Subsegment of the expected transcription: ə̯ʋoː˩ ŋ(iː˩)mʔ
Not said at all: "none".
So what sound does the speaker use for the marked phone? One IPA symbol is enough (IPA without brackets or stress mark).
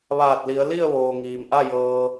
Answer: iː˩